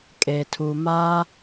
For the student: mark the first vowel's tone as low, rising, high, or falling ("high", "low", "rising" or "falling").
low